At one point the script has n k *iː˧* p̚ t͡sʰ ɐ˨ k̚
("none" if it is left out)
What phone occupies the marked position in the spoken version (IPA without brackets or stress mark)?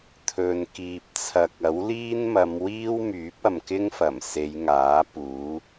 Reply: iː˨